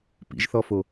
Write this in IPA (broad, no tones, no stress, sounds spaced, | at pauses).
p ḭ ʒ θ ɔ f o